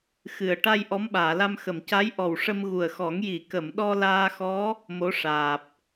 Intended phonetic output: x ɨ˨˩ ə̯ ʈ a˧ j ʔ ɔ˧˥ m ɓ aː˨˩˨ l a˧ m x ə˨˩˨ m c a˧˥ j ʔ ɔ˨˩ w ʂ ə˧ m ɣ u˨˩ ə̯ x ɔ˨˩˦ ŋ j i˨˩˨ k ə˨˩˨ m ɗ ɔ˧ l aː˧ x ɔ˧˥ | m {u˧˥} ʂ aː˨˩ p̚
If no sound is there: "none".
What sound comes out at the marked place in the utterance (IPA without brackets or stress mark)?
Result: o˧˥